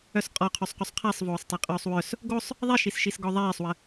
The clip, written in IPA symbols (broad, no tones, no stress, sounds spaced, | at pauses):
œ s qʼ ɔ qʰ y sˤ q y sˤ qʰ a sˤ v oː sˤ tˤ e qʼ œː sˤ w œ s | ɡ o sˤ | ðˤ i ʃ i s ʃ i s ɡ ɔ ðˤ eː sˤ w ə